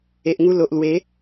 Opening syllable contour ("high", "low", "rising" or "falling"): low